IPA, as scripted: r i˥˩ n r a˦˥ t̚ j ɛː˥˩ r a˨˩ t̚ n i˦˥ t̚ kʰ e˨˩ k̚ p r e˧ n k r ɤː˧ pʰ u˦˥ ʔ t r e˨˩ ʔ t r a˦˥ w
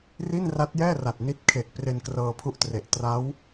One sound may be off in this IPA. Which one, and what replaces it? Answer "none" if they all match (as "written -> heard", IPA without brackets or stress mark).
none